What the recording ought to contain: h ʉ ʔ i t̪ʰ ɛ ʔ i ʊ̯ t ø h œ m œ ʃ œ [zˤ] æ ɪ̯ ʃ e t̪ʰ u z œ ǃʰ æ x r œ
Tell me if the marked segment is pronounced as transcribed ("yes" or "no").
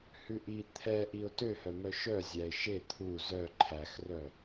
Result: no